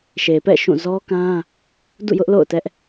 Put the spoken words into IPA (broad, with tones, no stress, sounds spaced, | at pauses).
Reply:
ʃ e˨ p ɛ̰˦˨ ʃ ũ˦˨ z ɔ˦ k ã˦ | d ṵ˦˨ j ʊ˦ ʔ l o̰˦˨ ʊ̯ t ɛ˦ ʔ